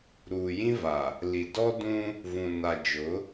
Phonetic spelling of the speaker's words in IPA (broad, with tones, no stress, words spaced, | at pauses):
ɾuː˨jĩ˦va˨ | li˨dɔ˦dũ˦ | vũ˨na˨d͡ʒʊ˨˦